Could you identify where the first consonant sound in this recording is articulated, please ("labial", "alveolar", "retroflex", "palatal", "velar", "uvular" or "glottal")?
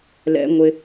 alveolar